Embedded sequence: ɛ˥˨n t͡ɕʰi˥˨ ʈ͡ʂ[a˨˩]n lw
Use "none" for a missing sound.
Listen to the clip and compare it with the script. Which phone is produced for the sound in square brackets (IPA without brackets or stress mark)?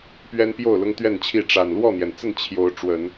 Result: a˨˩